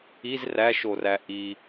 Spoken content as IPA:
iz ræʃoræ ʔi

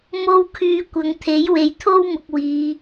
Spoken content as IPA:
mo˥wkʰyː˧ kʷɐ˨˧ŋt̪ʰe˨˥j we˨jt̪ʰo˥wmʊ˨k̚ wiː˨˧

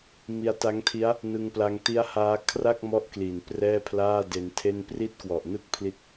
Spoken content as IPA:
mi˧a̯ta˦˥ŋtʰi˦˥a̯ | nɯ˧ŋpla˧ŋti˦˥a̯haː˦˥ kʰra˥˩k̚ mɔ˥˩ʔkli˨˩n prɛː˥˩pʰlaː˥˩de˧ntʰe˥˩n pri˦˥t̚kwɔ˨˩ʔnɯ˦˥k̚ pʰli˦˥t̚

